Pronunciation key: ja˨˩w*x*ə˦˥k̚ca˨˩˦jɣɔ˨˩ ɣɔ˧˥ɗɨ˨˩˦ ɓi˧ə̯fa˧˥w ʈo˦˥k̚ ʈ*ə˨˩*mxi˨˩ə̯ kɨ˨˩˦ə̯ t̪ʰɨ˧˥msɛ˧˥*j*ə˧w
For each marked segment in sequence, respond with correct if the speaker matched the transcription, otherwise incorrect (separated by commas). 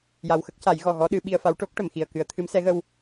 correct, incorrect, incorrect